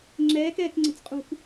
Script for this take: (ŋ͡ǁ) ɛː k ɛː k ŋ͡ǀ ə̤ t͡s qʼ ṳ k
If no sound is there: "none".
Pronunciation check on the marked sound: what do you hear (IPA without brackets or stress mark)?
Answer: ŋ͡ǁ